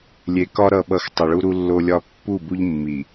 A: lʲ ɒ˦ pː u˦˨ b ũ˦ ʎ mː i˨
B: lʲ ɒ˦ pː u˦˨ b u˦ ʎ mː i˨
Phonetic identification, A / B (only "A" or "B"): B